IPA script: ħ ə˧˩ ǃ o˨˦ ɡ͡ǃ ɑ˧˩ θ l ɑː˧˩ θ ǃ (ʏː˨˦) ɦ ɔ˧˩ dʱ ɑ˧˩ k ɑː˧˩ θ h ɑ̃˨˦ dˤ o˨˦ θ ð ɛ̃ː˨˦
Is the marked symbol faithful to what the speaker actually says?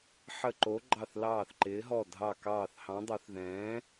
no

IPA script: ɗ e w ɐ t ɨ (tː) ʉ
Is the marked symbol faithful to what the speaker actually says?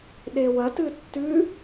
yes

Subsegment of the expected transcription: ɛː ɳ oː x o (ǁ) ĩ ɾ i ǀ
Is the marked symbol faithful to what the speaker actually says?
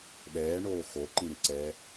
no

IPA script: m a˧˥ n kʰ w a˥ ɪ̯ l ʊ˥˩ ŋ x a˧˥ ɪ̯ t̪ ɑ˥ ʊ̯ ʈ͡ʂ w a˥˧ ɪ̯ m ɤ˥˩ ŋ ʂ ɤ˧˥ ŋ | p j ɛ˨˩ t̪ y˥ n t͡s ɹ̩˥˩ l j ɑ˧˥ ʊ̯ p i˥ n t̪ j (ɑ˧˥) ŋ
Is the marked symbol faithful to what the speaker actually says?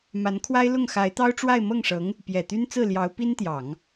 no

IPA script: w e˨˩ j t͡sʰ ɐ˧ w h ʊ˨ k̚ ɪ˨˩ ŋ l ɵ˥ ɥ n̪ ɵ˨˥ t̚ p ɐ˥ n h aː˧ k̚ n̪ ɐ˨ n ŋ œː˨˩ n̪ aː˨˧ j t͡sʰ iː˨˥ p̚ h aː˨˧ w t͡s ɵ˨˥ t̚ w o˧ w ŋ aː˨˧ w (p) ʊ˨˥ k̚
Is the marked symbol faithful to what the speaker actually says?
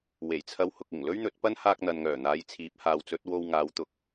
no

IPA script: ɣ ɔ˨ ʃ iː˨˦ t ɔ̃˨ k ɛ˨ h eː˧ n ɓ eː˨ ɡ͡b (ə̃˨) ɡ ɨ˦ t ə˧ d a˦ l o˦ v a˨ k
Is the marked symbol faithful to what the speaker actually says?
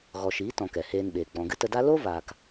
no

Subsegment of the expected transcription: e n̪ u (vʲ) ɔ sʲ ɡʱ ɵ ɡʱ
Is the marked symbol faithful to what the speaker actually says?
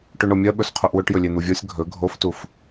yes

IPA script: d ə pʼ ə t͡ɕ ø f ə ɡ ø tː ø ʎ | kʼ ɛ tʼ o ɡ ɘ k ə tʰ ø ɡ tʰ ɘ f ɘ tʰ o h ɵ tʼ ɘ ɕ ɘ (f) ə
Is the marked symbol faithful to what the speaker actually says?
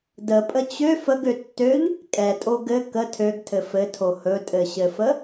yes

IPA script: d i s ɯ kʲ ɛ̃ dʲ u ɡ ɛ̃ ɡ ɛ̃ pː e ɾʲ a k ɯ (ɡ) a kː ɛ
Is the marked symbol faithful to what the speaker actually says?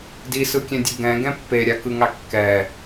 no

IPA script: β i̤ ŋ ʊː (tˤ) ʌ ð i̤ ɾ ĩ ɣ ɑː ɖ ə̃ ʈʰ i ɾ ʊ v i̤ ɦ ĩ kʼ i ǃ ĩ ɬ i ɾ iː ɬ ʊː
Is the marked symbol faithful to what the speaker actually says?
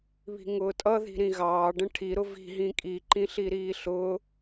no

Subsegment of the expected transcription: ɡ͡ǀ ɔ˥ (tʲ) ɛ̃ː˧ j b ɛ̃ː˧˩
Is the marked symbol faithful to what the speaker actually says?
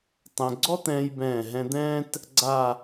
no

